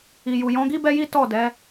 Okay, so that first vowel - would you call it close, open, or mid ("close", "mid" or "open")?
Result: close